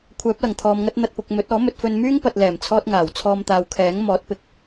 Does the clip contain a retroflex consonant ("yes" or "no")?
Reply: no